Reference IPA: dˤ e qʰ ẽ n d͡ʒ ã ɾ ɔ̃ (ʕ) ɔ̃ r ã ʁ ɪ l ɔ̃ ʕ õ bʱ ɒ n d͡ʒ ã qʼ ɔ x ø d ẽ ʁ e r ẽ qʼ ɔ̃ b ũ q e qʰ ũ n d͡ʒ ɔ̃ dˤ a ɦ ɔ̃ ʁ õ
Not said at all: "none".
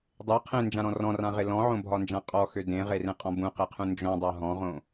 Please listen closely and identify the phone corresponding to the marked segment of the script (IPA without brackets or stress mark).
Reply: r